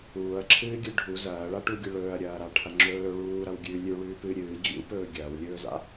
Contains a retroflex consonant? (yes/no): yes